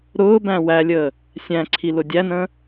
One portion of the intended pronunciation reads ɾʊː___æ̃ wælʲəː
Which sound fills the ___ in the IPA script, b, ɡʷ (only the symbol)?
b